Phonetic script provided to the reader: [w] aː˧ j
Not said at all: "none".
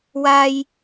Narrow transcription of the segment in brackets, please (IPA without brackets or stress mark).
w